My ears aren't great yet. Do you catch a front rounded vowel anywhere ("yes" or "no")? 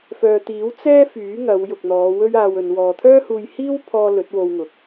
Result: yes